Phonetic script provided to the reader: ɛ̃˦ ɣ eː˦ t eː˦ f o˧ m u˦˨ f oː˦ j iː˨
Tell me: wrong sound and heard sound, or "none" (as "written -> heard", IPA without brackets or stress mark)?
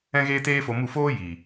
none